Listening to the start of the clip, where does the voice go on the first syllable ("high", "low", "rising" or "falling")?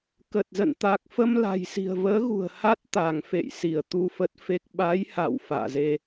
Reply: low